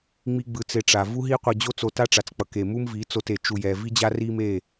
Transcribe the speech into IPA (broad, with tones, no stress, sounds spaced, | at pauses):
ŋ͡m i˦ ɡ͡b ɯ˧ t͡s e˧ ʈ͡ʂ a˨ v u˦ ɦ i˦ qʷ ʌ˧ d͡ʑ o˦ t͡s o˧ t a˦ ʈ͡ʂ a˨ t͡s k͡p ʌ˨ k e˨ m u˦ m v i˨˦ t͡s o˧ t e˨ t͡ʃ u˧ j ɛ˧ v i˦ d͡ʑ a˦ r i˦ m e˦˨